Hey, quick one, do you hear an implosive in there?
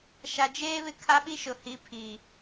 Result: yes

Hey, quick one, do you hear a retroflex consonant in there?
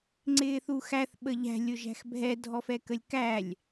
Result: no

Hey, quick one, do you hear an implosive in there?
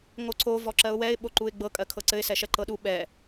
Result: yes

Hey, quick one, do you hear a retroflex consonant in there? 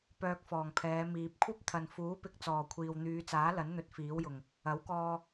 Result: no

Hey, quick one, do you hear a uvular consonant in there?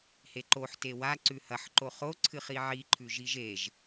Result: yes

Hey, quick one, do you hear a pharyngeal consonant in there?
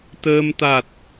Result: no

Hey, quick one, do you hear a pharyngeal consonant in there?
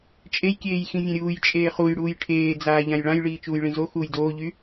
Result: no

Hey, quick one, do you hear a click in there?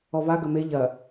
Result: no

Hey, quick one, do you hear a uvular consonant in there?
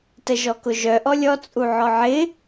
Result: no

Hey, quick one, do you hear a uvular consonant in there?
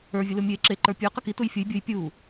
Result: yes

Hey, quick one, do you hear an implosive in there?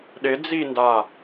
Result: yes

